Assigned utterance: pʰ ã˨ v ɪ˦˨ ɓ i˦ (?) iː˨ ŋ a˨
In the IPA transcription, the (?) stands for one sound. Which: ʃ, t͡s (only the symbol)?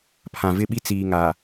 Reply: t͡s